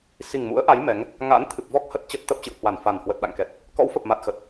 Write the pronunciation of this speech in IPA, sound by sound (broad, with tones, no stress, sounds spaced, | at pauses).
s i˨˩ ŋ m ṵ˧˥ ə̯ ʔ a˨˦ j m ɛ˨˦ ŋ | ŋ a̰˧˥ n t̪ʰ ɨ˨˩ p̚ v ɔ˦˥ k̚ h ə˦˥ t̚ t͡ɕ ə˦˥ t̚ t̪ ə˦˥ p̚ t͡ɕ ɨ̰˧˨ w h w a˧˩ n f a˨˩ n h w ə˨˩ t̚ ɗ a̰˧˨ ŋ k ɛ˨˩ t̚ | k ɔ̰˧˥ w f ə˨˩ p̚ m a˨˩ t̚ x ə˨˩ t̚